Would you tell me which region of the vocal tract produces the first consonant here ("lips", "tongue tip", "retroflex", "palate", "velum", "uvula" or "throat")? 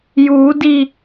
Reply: palate